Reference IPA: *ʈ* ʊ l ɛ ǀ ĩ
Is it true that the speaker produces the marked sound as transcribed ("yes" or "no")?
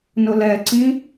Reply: no